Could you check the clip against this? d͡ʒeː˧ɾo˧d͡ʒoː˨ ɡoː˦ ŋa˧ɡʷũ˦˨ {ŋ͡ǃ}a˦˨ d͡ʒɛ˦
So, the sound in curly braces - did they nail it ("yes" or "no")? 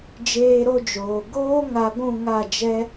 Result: no